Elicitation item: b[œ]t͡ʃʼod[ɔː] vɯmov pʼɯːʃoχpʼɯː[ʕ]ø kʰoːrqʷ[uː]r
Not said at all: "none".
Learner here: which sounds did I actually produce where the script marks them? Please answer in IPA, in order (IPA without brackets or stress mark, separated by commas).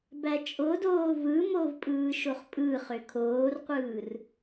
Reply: æ, oː, χ, ɯː